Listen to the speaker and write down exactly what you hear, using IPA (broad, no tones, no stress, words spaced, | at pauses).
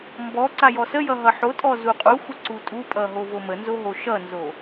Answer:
mbɔ ǀajɔsəjʌ ɦʌħotʼɔ zuqʼuxʷə ǀutʼupʼʌ ɦovomənzo ɦoʃʌnzo